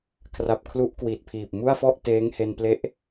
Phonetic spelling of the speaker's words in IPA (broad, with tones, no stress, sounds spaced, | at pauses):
kʰ r a˨˩ p̚ kʰ l u˦˥ ʔ k w i˨˩ t̚ pʰ iː˨˩ p̚ m u˥˩ a̯ f ɔ˥˩ ʔ t eː˦˥ ŋ h e˧ n p l e˦˥ ʔ